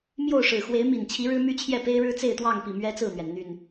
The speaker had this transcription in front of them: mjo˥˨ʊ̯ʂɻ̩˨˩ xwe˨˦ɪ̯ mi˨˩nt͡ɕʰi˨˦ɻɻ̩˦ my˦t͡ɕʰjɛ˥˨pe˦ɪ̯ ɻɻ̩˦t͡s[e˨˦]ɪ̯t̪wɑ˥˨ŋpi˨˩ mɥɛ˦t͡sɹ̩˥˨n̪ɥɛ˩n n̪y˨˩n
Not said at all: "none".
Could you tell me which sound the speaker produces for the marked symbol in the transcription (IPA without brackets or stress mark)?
e˥˨